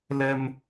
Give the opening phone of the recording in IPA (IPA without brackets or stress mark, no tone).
l